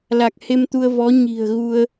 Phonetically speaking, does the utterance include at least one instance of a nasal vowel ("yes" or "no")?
no